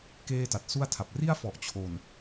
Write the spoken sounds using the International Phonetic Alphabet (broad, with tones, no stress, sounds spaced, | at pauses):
k eː˥˩ t a˨˩ t̚ s u˥˩ a̯ tʰ a˨˩ p̚ r i˥˩ a̯ f ɔ˨˩ ʔ t͡ɕʰ o˨˩ n